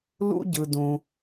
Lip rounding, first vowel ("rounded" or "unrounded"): rounded